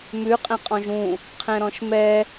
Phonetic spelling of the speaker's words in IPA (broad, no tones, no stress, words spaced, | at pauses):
mʉ qʼɛ̃qʼɔ̃ʒũ | qʰɛ̃ɾɔ̃ʃmɛ